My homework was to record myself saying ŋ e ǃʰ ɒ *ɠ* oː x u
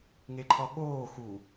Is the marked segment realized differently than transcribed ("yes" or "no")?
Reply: no